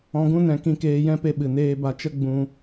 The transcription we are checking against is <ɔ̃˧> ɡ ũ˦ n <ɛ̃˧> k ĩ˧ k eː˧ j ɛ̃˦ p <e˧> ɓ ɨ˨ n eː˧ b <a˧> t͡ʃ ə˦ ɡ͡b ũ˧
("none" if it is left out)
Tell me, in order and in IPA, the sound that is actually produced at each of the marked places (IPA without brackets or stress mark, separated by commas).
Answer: ɔ̃˧, ɛ̃˧, e˧, a˧